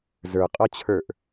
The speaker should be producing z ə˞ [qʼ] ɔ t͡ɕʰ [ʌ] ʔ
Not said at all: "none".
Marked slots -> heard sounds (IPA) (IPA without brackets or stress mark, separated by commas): qʼ, ə˞